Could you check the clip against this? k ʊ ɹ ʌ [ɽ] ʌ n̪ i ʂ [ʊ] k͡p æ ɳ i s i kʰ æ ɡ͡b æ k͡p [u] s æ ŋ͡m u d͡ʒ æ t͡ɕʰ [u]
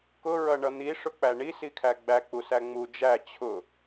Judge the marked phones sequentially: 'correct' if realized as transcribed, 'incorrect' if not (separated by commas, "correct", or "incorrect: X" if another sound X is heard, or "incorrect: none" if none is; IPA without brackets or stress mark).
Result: incorrect: ɳ, correct, correct, incorrect: ʊ